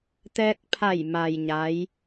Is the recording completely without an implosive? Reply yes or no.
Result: yes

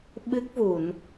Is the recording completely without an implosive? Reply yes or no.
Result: no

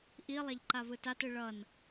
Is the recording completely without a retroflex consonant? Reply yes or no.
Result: no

